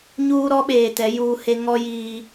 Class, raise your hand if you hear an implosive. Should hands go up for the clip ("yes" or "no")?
yes